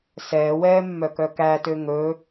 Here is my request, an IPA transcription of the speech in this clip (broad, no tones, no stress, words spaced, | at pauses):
sɛːwɛː mːœkœkætø ŋɵ